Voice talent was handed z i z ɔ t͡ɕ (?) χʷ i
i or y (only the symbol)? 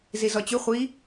y